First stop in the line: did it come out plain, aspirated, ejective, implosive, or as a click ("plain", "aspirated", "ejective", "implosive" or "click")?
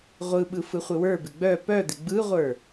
implosive